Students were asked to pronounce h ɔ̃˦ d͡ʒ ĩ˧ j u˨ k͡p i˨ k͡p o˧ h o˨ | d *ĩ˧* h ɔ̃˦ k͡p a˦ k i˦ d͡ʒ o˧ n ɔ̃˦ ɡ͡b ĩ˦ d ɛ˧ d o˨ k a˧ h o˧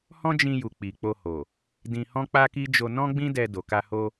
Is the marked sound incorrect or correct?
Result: correct